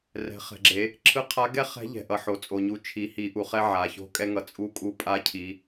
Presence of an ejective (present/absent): present